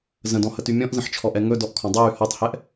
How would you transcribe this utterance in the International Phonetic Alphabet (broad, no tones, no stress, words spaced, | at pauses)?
zə̃dɔ̃həty mʲɔ̃ʔzə̃ħt͡ʃʰɔʔɛ ŋɵdɔʔkʰɔ̃ dˤɯjy hɔtˤhɛʔ